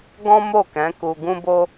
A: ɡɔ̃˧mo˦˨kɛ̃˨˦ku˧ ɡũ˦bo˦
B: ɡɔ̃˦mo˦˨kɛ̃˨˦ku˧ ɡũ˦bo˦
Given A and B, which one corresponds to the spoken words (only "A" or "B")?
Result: B